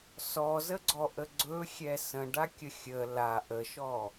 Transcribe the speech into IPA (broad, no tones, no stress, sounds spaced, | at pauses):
s ɔ z ə ɡ͡ǀ ɔ ʔ ə ɡ͡ǀ ɵ xʲ ɛ s ə̃ ɖ a kʲ ə xʲ ə l a ʔ ə ʃ ɔ